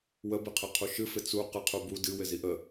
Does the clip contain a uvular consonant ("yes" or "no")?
yes